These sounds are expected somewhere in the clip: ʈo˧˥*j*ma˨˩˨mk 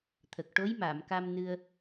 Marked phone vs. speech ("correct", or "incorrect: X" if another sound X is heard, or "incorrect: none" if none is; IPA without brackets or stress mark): correct